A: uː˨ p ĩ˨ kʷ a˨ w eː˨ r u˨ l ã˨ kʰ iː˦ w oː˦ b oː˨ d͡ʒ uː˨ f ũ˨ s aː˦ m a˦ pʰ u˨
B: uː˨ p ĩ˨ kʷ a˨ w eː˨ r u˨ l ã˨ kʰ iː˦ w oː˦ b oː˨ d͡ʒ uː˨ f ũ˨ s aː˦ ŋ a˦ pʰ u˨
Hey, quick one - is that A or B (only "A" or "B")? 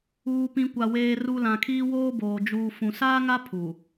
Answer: B